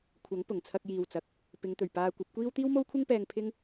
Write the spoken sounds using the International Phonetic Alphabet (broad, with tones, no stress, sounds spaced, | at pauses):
kʷʰ ɐ˨˥ ŋ p ʊ˨˩ ŋ t͡sʰ ɐ˧ k̚ j iː˨ w t͡s ɐ˨ k̚ | p ɪ˨˧ ŋ t̪ ɵ˨˩ ɥ p aː˧ kʷ ɐ˨˥ p̚ kʷ iː˥ w t̪ iː˥ w m o˥ w kʷʰ ɪ˥ ŋ p ɛː˧ ŋ pʰ ɪ˥ ŋ